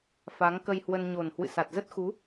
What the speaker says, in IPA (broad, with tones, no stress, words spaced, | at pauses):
fa˨˦ŋkə˧jhwə˧n ɲo˨˩n hwɨ̰˧˨sa˨˩t̚ zə˦˥t̚xu˨˦